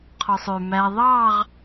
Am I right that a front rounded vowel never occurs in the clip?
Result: no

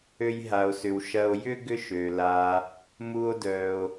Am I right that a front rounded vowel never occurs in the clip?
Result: no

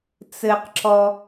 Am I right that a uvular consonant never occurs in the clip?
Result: no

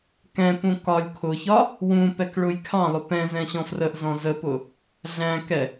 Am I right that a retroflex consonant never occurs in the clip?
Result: no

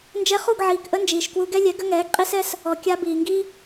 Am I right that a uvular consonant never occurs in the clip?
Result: no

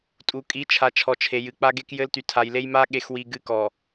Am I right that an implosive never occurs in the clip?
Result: no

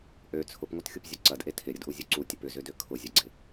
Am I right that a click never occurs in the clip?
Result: no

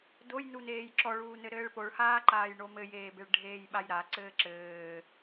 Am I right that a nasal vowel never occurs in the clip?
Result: yes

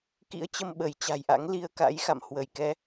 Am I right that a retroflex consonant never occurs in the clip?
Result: yes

